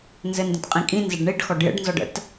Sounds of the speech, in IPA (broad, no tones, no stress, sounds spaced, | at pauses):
n z ɘ n d ə̃ t qʼ ĩ kʼ ĩ n z ə ɖ ɳ i ɖ x ɔ ɖ j ə̰ ɖ n z ɔ ɖ ə̰ t